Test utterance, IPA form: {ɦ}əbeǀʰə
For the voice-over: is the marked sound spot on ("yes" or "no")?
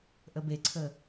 no